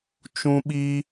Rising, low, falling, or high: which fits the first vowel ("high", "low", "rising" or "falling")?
high